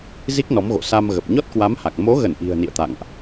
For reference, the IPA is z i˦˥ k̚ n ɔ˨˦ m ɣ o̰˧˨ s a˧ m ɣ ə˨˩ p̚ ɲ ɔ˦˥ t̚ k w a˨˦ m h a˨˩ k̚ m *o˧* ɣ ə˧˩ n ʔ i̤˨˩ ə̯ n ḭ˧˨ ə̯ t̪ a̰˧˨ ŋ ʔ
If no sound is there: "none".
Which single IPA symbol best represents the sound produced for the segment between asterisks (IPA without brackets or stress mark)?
o˨˦